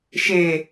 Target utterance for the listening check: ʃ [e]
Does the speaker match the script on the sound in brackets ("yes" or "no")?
yes